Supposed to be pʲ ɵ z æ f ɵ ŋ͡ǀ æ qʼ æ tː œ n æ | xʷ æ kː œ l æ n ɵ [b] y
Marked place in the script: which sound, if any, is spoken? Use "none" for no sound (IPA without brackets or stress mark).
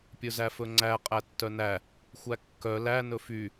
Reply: f